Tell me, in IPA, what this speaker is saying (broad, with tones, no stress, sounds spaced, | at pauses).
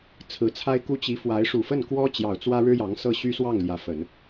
t͡sʰ ɹ̩˨˩ t͡sʰ a˥ ɪ̯ k u˥ t͡ɕ i˧˥ f w a˧˥ ɪ̯ ʂ u˨˩ f ə˥˩ n k w ɔ˥ t͡ɕ j ɑ˨˩ ʊ̯ t͡s w ä˥ ɻ ɻ̩˥ j ɑ˧˥ ŋ s ɤ˥˩ ɕ y˥ s w ɑ˥˩ ŋ l j ä˧˥ f ə˨˩˦ n